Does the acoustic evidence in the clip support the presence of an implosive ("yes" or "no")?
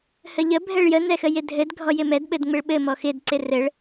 yes